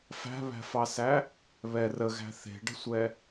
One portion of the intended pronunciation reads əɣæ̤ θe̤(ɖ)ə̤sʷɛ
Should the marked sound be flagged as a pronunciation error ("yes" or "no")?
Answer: no